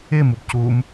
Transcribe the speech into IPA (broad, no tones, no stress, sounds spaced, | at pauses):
ɪ m u b c u m